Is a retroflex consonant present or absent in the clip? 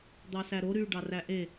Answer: present